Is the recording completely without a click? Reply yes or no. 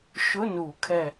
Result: yes